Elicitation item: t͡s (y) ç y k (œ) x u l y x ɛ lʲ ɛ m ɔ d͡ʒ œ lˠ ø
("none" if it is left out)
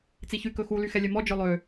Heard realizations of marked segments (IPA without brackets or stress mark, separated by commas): i, ɵ